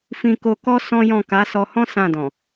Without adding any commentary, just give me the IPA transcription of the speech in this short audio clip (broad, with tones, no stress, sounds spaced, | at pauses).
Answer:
f ĩ˧ k o˧ k ɔ˦ s ɔ̃˦ j ɔ̃˦˨ k a˨˦ s ɔ˧ h ɔ̃˦ s ã˦˨ d ɔ̃˨